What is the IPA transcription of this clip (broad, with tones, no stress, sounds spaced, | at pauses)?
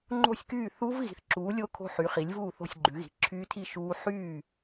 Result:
ŋ͡ǃ o̤˥˨ sʲ k yː˥˨ θ u˦˥ v ɣ i̤˨˥ θ ǁ uː˨˥ lʲ o˦˥ kʰ o̤˦˥ ħ y˨˥ χ i˨˥ lʲ v uː˥˨ θ o̤˥˨ sʲ ɡ͡ǃ ʉ˨˥ ɣ i̤˨˥ ǁʰ yː˦˥ tʰ i˥˨ ʃ uː˦˥ ħ yː˥˨